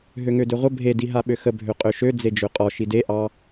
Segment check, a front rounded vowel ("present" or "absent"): present